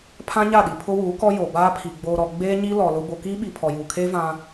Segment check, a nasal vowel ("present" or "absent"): present